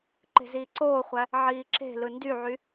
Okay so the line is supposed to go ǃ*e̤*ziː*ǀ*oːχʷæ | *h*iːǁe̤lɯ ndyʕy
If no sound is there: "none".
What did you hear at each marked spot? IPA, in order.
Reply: e̤, ǀ, ʕ

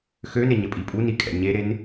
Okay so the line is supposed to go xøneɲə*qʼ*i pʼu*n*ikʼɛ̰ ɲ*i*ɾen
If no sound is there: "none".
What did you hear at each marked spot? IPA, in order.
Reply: pʼ, n, e

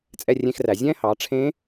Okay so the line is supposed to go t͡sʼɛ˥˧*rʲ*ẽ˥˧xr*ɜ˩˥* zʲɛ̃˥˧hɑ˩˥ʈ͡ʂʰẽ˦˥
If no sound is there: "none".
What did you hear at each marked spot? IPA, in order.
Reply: rʲ, æ˩˥

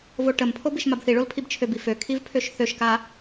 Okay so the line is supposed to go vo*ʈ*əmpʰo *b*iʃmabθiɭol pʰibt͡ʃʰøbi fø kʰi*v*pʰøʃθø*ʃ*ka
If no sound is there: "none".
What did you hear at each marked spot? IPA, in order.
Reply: ʈ, b, v, ʃ

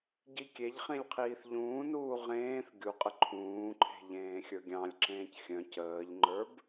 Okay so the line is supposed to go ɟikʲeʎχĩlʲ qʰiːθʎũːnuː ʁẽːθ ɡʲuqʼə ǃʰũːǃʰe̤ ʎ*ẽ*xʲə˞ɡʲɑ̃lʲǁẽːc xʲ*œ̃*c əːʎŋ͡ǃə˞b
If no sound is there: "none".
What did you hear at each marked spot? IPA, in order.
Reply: ẽː, œ̃

